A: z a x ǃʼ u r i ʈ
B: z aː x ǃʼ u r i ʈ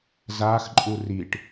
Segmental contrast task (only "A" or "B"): B